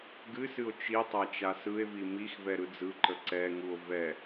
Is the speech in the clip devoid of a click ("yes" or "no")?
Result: no